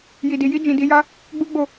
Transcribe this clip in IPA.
j i˨ d i˨ j i˧ d͡ʒ ĩ˨ d i˧ j a˦ | ɡ͡b u˦ ɡ͡b o˦˨

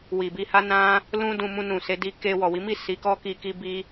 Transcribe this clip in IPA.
w i˨ b i˧ h a˦ n ã˦ | l ũ˦ d ũ˧ m ũ˧ n ũ˨ s e˨˦ d i˧ k e˧ w ɔ˨ w i˨˦ m i˦˨ s i˨˦ k ɔ˦ k i˧ k i˦ b i˦

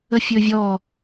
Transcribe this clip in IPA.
ə fʲ ɵ vʲ ɔ

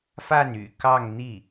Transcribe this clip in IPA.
f a˥˩ n y̰˨˩ k ɑ˥˧ ŋ n̪ i˥˩

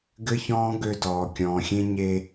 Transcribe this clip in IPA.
ɡ ɘ˦ ç ɔ̃ː˦ ɡ ø˦ d ɔː˨ kʲ ɔ̃ː˨ xʲ ẽ˦ ɲ e˦

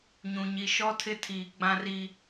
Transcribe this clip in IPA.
ɲ ũ˨ ɲ i˨ ʃ ɔ˦ tʰ ɪ˦ tʰ iː˨ ɡ͡b ã˦ r iː˨

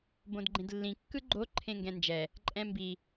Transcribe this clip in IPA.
b õ d ɡ͡ǃ ẽ d lː ĩ kː ɯ ɡ͡ǃ o ǃʰ ẽ ŋ ɡ ɛ̃ n d͡ʒ ɛ | ǃʼ ɛ̃ m b i

